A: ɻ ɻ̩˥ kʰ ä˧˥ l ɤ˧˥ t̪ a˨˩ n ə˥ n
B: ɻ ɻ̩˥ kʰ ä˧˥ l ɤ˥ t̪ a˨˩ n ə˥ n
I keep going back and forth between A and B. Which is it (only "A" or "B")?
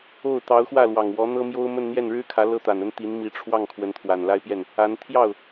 B